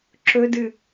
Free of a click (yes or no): no